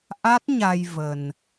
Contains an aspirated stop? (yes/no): no